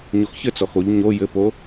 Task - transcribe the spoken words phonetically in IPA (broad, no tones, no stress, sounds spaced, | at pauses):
ɲ o x ç ɘ t͡s ɔ x o ʎ ɲ o j ɘ p o